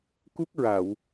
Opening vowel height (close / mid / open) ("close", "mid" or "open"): close